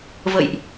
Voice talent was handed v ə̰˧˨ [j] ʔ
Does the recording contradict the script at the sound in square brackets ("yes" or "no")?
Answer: no